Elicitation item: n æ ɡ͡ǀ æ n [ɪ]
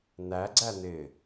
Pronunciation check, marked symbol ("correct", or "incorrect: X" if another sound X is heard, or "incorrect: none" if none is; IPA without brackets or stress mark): correct